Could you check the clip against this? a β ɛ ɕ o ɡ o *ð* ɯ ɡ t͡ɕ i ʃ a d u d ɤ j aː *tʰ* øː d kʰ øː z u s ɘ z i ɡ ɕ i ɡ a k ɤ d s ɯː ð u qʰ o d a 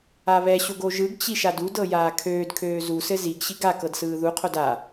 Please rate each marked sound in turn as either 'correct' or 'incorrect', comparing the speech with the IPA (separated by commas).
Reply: incorrect, incorrect